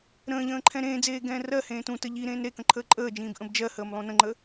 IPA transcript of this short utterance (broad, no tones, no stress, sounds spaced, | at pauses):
ɾ ə̃ː ʎ ə̃ː ǃʰ ɛ̃ ɾ ẽː d͡z eː ɡ ɛ̃ː r ɜ h ẽː t ũ t ə ʎ i ɾ ẽː n ɾ e k ə̃ ǃʰ əː ǃʼ əː d͡ʒ ĩː b ʔ ə̃ b d͡ʒ ɜ h əː m lˠ ũ n ə̃ ŋ͡ǃ ə